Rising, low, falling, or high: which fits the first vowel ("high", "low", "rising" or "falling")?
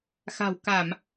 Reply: low